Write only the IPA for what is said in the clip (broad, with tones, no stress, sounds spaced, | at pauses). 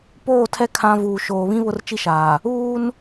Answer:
p oː˦˨ tʰ ɛ˦ kʰ ã˦ v uː˨ ʃ oː˨ β ĩ˦ β ʊ˦ r t͡ʃ i˦ ʃ aː˨ | uː˦ n